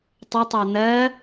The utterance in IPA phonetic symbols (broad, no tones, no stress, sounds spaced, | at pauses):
tˤ ə tˤ æ n̪ ɜ